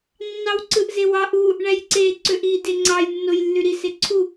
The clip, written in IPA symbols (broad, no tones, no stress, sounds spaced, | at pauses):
nː ɑ w ǀ ɯ ʔ z e w ɑ ʔ u | ɳ æ j ǀ e ǀ ø ʔ i d e ŋ͡ǀ ɑ j nː o j lː y ɾ i s e ǀʰ u